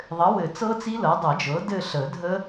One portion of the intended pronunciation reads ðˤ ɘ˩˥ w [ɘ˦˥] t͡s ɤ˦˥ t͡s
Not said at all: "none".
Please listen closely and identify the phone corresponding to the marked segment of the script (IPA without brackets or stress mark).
ɘ˨˩˦